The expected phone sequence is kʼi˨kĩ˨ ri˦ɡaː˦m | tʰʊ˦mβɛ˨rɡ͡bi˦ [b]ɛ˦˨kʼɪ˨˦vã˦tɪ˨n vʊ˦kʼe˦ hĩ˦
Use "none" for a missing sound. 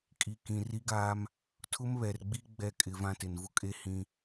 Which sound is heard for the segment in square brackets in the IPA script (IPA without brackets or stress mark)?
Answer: ɡ͡b